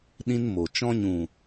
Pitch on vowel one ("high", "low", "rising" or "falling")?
high